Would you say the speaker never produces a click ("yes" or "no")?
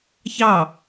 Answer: yes